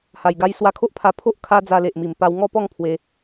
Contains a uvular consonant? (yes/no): no